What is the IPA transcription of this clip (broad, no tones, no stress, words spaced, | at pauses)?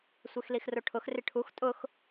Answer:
sʷexlixroʈʰʊx rɪʈʰux tʼʊx